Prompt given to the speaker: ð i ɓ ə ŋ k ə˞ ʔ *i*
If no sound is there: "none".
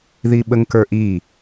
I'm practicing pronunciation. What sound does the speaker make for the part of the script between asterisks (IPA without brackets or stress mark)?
i